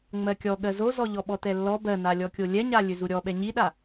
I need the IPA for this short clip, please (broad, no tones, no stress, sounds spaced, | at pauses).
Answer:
ŋ͡m ɜ kʲ ɔ ɠ ɜ z o z ɔ ʎ ɔ ɓ ɔ t ɛ lː ɔ b ɜ n a lʲ ɔ kʲ o lʲ ɛ ɲ a lʲ ø z u ɾʲ ɔ ɓ ɛ ɲ i ɗ a